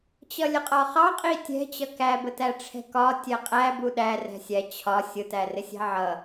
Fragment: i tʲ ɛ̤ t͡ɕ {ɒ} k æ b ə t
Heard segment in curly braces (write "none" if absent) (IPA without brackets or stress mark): ʌ